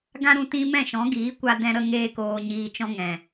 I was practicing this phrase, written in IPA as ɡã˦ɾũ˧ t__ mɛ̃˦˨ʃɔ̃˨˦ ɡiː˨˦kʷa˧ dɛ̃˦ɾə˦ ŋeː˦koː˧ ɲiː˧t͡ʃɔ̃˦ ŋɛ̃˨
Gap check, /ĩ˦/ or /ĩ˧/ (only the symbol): ĩ˦